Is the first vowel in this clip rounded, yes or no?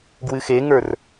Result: no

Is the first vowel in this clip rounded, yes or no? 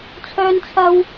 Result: yes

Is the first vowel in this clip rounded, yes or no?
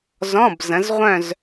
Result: yes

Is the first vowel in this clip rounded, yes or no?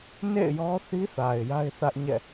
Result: no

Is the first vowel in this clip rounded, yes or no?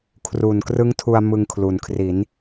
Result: yes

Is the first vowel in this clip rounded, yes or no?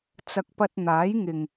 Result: no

